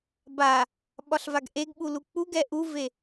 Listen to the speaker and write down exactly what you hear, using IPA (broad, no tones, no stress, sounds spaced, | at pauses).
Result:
b a | ɓ ɒ ɬ v a ɡ ʔ e ɡ ɓ u l u k͡p u ɡ ɛ ʔ u v e